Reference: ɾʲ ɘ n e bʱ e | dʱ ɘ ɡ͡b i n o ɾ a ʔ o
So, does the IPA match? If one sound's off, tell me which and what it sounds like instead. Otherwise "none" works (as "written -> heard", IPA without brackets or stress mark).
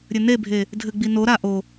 none